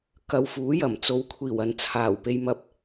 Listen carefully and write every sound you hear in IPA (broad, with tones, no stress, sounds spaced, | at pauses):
k ɐ˨˧ w f uː˨˥ j ɐ˨˩ m t͡s o˨˧ w kʷʰ iː˨˩ w ɐ˨ n t͡sʰ aː˨˩ w p e˧ j m ɐ˧ p̚